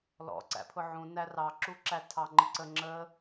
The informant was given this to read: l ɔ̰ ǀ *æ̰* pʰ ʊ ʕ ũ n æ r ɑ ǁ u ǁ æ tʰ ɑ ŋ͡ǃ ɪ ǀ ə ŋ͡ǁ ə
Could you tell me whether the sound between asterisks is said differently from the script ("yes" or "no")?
no